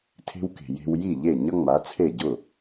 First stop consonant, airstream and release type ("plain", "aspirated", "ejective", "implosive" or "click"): aspirated